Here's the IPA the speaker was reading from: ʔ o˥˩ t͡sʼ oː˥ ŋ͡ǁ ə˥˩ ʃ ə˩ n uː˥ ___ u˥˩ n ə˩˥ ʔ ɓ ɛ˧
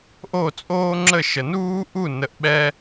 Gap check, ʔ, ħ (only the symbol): ʔ